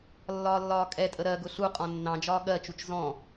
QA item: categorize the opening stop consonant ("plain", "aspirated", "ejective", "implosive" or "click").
ejective